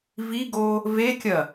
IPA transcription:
v i ɡ o | v e kʲ ɐ

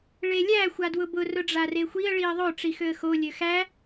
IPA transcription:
ɭ e lʲ æ xʷ a d w ʊ b ʊ r ʊ ɖ͡ʐ a r e xʷ i ə̯ ɭ i ə̯ ðˤ o ʈ͡ʂ i x ø ə̯ x o lʲ ø x æ

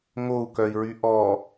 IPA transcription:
ŋ o u̯ k œ i̯ ɹ y ʔ ɔ

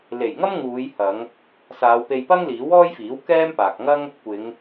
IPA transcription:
l e˨˩ j ŋ ɐ˥ m ŋ uː˨˧ j h ɐ˨˧ ŋ | s aː˨˧ w p e˧ j p ɐ˥ ŋ l iː˨˥ w ɔː˥ j f iː˨˥ w k ɛː˥ m p aː˨ k̚ ŋ ɐ˥ ŋ | kʷ ɪ˨˧ ŋ

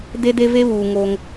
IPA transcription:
d e˦ d e˦ v e˦ β uː˨ ŋ o˦ ŋ

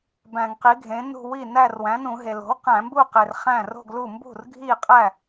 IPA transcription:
b æ̃˧˩˧ ŋ q i˩˥ ɡʱ ẽ˩˥ n ṳ˥˧ w i˥˩ n æ˥˧ r w æ̃˩˥ n ũ˧˩˧ ɦ e˩ l o̤˩˥ w q æ̃˧˩˧ m b u˥˧ q e˩ r χ æ̃˥˩ r o̤˥˧ ɡ l u˥˩ m b ṳ˥˩ r ɡʱ i˥˩ qʼ æ˥˩

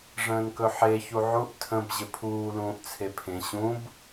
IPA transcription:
ʐ ə̃ː n k ɵ ħ e ç u ʕ u ʔ tʰ ə̃ b ʑ ɪ pʰ uː l ũː ʔ t͡sʰ e pʰ ẽ ɕ ũ b

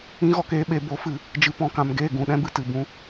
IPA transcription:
ĩ˧ ɣ ɔ˨ k eː˧ ɓ e˨ b o˨˦ f ɨ˨ | d͡ʒ ɨ˨ p ɔ̃˨ k ã˨ m ɡ eː˦˨ ɡ ũ˨ ɗ ɛ̃˧ b ɨ˨ t ɨ˨ b ũ˧

